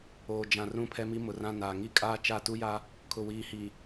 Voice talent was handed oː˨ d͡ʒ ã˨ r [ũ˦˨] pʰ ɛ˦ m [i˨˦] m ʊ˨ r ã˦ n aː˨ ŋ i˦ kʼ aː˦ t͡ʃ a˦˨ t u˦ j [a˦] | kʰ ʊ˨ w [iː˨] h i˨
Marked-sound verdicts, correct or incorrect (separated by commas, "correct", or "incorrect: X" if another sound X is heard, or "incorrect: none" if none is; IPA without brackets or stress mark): correct, incorrect: i˦, correct, correct